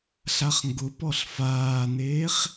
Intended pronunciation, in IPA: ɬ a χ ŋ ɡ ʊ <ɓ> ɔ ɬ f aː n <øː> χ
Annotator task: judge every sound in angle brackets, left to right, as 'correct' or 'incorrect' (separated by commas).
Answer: incorrect, incorrect